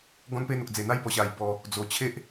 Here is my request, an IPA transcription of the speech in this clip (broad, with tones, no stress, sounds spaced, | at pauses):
ɡ ɔ̃˦ n p e˥˧ n̪ o˨ k̚ d͡z e˨˩ n̪ a˦ j b ɔ˨˩ ɕ a˨˩ j b ɔ˨˩ | d͡z o˨˩ t͡ɕʰ e˦ ʔ